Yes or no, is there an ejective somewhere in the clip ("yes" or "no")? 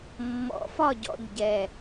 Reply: no